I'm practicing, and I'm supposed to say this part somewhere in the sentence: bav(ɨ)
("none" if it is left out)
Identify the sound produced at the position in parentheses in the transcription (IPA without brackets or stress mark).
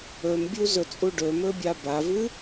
ɨ